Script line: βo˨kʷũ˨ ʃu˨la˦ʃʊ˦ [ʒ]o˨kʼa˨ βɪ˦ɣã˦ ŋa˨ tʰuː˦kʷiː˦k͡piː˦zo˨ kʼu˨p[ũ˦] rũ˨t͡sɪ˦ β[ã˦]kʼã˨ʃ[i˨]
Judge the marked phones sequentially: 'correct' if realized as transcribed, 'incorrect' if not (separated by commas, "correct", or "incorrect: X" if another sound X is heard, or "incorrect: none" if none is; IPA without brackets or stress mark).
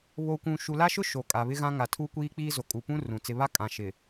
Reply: incorrect: ʃ, correct, incorrect: a˦, incorrect: ɪ˨